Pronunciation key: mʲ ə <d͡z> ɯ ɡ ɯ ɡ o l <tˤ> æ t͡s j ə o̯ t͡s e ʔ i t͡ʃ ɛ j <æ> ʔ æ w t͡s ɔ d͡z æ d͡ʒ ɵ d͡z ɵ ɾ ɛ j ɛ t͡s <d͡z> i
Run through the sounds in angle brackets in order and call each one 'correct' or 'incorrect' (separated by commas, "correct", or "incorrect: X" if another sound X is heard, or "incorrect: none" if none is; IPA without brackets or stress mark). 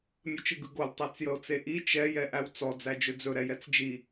incorrect: t͡ʃ, correct, incorrect: ɛ, incorrect: d͡ʒ